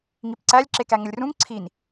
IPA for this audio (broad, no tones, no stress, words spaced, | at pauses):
ŋipǀælʲ ǁekæŋəlʲrũŋ ǀʰin